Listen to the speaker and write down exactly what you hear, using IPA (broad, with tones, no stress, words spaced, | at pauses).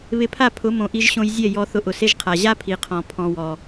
βɪ˧pʰa˦˨pʰʊ˨˦mõ˨ ʔi˧ʒɕõ˧j zʲɛ˦˨jɔ˧ θʊ˧ ʔʊ˨se˧ʒqʰa˨ ʑa˦pʰi˨qʰɔ̃˨ pʰɔ̃˧wɔ˨